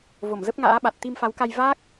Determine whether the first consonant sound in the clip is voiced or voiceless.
voiced